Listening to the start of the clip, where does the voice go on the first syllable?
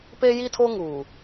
high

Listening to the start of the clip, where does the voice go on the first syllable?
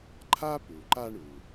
high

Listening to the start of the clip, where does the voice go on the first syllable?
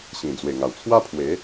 low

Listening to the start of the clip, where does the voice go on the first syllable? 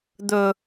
low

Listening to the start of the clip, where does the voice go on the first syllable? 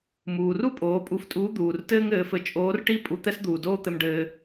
low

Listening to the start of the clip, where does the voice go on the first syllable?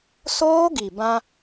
high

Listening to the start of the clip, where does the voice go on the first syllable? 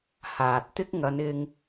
low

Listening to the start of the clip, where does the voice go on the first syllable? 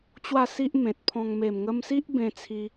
falling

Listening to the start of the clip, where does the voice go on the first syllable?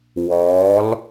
rising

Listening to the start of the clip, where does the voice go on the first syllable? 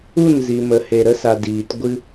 falling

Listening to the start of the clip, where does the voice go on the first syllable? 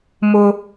high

